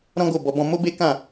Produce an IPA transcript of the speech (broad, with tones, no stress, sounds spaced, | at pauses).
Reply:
ɾ ɔ̃˦ ɡ o˦˨ b ɔ˧ b ɔ̃˧ m o˦ b e˦ k ã˦˨